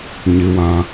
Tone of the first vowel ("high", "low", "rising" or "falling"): high